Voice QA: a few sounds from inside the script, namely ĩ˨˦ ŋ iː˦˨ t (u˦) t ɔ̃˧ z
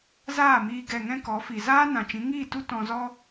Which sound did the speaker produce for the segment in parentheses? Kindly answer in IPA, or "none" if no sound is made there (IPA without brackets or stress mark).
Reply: u˦